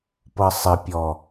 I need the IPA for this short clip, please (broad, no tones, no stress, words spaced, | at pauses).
pɤsˤɪpʲɔ